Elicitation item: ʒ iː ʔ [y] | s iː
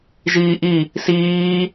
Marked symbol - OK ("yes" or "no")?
no